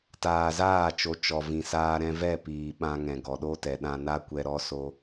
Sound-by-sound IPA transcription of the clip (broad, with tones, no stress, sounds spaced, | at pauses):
t aː˨ z aː˦˨ t͡ʃ o˨˦ t͡ʃ ɔ˨ v ĩ˨ s aː˧ ɾ ɛ̃˧ v ɛ˦˨ p iː˨ ɓ ã˧ ŋ ɛ̃˨ ɡ ɔ˨ ɗ o˦ t ɛ˨ ɗ ã˧ n a˦ kʷ ɛ˧ ɾ ɔ˦ s o˦